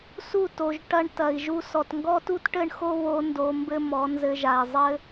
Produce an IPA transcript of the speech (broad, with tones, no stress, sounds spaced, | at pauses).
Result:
s u˦˨ t o˨ ʒ ʈ ɐ˧ ɳ t ɐ˨ i̯ ʒ u˧ s ɔ˨ t ŋ ɡ ɔ˦ t u˦ t ʈ ɘ˦ ɳ x o˦ β o˧ n d o˧ m b ɘ˦ m ɔ˨˦ n z ɘ˧ ʒ a˨ i̯ zˤ ɘ˦